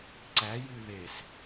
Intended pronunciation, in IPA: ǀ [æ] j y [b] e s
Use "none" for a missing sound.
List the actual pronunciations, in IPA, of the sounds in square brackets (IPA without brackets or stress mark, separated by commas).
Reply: æ, ð